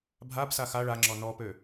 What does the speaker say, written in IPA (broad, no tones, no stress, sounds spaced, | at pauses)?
bʱ a b s a x a ɭ a ŋ͡ǁ ɔ n ɔ p ø